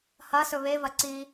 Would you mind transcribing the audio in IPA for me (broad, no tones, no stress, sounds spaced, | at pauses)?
h ɐ s ɵ β e v ɐ ǀ i